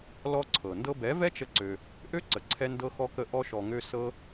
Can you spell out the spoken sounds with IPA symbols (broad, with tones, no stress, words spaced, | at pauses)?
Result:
lɔ˦ǀʰɤ˨ ndɤ˧bɛ˨˦vɛ˦t͡ʃə˧ ǀø˧ | ʔø˦ǀə˨ǀʰɛ˧ ndɤ˧xɔ˧kə˧ ʔɔ˧ʃɔ˨ŋø˧ sɤ˧